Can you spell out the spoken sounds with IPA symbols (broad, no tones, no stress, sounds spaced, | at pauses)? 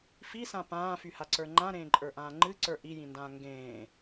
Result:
f i s ã p ãː f y h a ǀ ə˞ ŋ͡ǃ ã ɾ ẽː ǃʼ ə˞ ʔ ãː ŋ͡ǃ ɨ ǀ ə˞ ʔ i j ĩ n d ãː ŋ ɡ ẽː